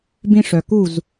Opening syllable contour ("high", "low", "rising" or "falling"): high